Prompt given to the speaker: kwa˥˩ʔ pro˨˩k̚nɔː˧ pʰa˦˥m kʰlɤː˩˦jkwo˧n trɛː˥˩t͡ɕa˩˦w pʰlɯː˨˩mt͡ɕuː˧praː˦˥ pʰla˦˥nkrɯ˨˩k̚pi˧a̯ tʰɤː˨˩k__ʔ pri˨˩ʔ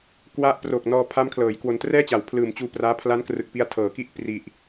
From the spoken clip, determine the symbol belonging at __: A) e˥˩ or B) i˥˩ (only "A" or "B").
B